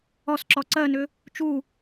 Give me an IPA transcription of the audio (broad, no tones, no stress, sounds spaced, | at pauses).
ɔ s ǁ ɔ ǀ ɜ n ʏ | t͡ʃ u